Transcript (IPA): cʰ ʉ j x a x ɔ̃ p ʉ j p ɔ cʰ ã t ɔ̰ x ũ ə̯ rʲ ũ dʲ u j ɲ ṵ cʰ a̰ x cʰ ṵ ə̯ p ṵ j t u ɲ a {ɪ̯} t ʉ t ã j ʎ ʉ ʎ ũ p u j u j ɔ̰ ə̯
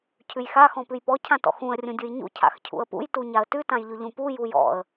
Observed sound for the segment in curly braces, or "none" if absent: ə̯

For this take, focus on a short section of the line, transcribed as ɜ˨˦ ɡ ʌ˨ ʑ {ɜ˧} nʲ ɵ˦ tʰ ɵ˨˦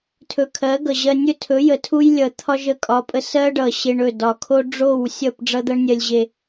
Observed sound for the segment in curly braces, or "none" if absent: ɜ˧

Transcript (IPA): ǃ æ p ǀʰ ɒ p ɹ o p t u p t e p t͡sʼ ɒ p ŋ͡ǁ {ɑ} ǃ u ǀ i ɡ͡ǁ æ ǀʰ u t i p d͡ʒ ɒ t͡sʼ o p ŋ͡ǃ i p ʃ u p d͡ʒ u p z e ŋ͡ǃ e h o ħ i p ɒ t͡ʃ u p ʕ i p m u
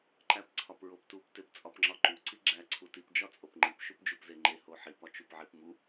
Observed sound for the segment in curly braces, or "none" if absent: ɒ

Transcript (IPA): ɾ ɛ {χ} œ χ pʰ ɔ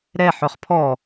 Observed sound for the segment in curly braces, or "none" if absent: ħ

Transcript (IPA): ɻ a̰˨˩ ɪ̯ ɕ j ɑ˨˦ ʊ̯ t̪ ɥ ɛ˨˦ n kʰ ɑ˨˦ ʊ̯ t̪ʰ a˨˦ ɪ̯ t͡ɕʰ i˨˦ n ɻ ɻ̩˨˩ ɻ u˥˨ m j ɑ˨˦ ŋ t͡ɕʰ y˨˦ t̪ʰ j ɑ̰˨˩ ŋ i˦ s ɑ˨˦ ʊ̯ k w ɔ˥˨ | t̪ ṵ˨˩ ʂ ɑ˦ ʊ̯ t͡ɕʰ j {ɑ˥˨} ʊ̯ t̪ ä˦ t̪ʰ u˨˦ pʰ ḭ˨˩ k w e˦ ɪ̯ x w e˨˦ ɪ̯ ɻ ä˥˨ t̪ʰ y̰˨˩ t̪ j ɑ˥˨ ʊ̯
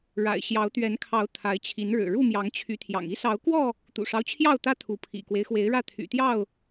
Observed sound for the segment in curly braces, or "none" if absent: ɑ˥˨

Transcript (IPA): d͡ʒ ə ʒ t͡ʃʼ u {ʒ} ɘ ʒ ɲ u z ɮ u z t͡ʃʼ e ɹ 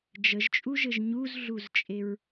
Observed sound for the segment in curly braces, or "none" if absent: ʒ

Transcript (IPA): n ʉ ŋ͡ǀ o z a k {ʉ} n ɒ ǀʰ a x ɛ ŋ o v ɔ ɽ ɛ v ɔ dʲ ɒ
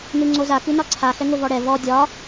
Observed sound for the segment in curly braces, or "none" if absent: ʉ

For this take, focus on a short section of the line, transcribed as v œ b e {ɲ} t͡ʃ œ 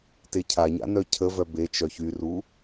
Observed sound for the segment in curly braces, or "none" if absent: none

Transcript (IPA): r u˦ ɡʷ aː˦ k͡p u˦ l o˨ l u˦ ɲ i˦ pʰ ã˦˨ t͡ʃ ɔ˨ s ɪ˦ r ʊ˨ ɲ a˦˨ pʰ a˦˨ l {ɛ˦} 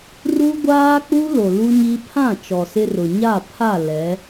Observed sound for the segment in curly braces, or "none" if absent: ɛ˨˦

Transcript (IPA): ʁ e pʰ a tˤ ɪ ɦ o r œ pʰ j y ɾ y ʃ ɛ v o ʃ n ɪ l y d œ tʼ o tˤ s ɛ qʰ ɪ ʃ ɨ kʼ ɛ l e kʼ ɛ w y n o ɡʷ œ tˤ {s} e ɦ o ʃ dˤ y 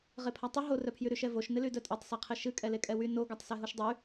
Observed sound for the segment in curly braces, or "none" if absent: s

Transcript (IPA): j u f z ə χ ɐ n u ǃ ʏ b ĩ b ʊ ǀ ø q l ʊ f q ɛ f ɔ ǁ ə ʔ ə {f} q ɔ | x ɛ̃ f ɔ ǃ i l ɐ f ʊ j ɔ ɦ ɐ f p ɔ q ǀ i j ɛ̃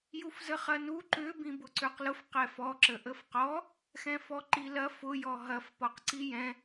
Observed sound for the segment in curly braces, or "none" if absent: f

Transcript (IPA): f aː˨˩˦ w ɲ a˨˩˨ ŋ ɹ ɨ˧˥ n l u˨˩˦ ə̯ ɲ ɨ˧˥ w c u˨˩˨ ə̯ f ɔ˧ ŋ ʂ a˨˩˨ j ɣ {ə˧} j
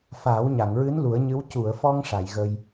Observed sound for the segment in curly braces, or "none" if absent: ə˧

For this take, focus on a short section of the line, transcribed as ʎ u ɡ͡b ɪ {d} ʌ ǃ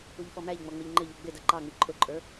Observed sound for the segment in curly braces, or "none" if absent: d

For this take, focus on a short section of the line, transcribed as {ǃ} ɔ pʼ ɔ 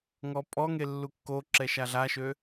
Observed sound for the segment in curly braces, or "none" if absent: ŋ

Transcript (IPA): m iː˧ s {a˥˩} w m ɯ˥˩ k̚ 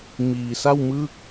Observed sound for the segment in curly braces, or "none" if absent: a˥˩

